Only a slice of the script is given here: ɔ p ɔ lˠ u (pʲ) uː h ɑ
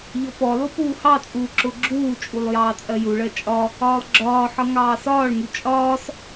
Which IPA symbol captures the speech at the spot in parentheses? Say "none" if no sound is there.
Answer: p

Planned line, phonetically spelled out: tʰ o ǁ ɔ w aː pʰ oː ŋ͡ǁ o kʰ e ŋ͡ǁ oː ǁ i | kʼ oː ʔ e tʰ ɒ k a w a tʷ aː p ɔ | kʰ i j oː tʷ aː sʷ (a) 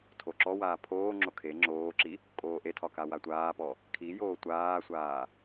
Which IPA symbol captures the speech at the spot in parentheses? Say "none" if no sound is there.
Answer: aː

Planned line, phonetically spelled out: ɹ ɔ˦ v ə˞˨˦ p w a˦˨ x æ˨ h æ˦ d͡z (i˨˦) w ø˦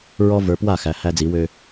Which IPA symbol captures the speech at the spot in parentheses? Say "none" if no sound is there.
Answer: i˨˦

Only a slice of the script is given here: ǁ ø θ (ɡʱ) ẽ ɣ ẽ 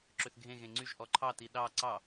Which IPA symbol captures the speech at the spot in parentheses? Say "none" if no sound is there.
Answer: ɡʱ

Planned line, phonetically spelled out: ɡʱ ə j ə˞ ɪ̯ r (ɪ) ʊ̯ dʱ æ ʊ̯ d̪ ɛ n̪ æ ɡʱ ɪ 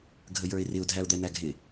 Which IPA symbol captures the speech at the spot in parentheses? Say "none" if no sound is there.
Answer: ɪ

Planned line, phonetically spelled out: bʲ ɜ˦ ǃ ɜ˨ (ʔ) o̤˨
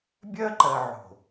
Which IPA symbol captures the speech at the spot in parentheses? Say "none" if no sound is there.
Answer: ʕ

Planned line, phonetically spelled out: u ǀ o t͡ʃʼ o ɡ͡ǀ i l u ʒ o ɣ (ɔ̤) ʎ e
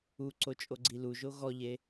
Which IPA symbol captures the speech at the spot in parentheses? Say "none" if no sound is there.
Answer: ɔ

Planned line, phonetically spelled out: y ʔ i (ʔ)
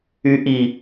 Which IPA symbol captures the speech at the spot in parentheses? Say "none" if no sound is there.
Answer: none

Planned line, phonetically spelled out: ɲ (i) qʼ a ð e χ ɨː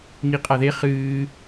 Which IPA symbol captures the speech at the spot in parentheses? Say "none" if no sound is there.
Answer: i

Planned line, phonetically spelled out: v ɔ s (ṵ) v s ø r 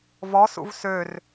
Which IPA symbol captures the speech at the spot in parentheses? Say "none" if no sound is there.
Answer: ṵ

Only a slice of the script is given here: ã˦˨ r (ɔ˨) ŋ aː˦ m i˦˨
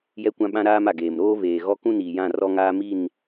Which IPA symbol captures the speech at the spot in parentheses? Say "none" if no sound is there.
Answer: ɔ˦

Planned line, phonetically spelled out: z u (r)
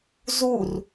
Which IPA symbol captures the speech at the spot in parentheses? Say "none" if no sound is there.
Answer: r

